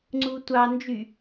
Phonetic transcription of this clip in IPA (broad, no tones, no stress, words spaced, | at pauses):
ŋ͡ǀutʷɑ nd͡ʒy